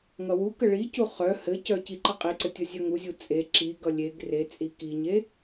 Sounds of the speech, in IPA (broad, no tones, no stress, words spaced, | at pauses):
ŋʌwukə ɭicu χœ hɘcœ ciǃəqʼiǀɘ tʲʌzʲœŋuzʲu t͡sʼe ǁiɡʌ lʲeɡ ret͡sʼi kiɲe